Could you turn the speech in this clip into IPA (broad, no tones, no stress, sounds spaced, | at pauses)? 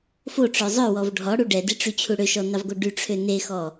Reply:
f o ʈ͡ʂ œ zˤ œ w ɔ v ɖʱ ɔ ɽ u ɖ ɛ d i ʈ͡ʂ y t͡ɕʰ u ɽ ø ʃ ɔ n ɑ v ɡ o ɖ y ʈ͡ʂʰ ø n e x ɔ